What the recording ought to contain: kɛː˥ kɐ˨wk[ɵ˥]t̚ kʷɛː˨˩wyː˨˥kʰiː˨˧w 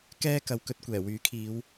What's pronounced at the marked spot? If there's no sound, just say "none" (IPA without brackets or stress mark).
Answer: ɵ˧